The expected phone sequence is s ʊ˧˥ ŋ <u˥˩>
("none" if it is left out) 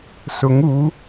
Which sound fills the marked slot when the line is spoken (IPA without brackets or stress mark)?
u˧˥